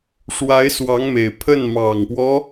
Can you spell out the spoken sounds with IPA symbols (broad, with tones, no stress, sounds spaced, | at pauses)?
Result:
ʂ w a˧˥ ɪ̯ s w ɑ˧˥ ŋ m e˨˩ ɪ̯ pʰ ə˥˩ n m ɑ˨˩ ŋ p w ɔ˦